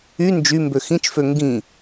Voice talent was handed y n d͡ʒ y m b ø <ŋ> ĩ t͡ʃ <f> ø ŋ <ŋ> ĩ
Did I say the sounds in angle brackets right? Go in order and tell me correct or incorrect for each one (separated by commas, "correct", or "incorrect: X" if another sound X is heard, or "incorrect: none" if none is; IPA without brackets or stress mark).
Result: incorrect: x, correct, incorrect: ɡ